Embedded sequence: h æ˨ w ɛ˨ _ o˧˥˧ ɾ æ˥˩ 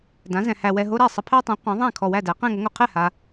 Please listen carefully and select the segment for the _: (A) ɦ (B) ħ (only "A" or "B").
A